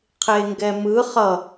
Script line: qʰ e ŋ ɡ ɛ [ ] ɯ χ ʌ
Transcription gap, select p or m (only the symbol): m